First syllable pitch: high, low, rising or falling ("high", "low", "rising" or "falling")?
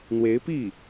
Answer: rising